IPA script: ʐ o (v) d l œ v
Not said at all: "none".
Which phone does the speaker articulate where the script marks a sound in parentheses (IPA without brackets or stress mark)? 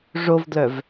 v